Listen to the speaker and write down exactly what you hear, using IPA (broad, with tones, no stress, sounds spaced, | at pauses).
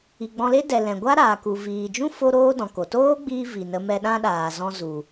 i˨ ɡ͡b ɔ̃˧ l e˦ d ɛ˨ l ɛ̃˨ ɡʷ a˦ ɾ aː˨ k u˨ v iː˨ d͡ʒ ũ˦ f o˦ ɾ oː˦ d ɔ̃˨ k o˨ t oː˦ ɡ͡b iː˧ v i˨ n ə˧ m ɛ˧ ɗ ã˦ ɗ aː˨ z ɔ̃˧ z u˨